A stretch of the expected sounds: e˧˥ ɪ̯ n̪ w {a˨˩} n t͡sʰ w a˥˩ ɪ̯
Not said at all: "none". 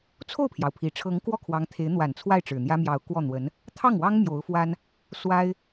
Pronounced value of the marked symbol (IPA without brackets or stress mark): a˨˩